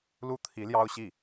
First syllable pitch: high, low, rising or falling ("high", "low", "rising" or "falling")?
falling